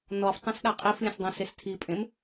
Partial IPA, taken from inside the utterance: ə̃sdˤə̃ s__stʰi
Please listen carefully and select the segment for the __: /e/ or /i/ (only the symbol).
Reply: e